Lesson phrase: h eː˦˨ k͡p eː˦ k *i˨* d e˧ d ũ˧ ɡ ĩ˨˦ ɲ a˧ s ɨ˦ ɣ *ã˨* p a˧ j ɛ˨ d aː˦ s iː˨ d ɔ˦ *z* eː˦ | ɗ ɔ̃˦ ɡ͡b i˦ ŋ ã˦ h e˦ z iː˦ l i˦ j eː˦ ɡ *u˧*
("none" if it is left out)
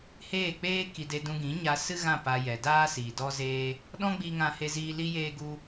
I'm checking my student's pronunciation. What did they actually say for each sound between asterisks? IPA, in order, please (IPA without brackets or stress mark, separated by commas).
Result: i˧, ã˦˨, z, u˦